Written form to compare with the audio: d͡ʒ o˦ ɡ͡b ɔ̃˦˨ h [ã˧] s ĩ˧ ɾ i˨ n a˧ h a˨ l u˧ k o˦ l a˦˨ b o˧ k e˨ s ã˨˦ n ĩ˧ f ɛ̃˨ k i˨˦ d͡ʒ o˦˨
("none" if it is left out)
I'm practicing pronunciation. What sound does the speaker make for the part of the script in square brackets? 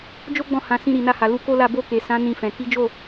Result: ã˨˦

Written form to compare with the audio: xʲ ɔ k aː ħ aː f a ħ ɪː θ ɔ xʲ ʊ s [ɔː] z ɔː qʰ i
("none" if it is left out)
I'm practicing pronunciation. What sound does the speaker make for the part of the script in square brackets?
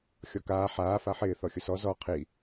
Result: ɔ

